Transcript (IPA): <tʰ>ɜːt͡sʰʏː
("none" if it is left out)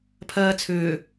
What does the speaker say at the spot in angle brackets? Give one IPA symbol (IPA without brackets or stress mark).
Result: pʰ